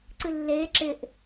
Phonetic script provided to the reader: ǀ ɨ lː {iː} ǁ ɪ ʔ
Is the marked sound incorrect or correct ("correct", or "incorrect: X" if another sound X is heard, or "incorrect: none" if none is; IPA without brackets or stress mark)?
incorrect: eː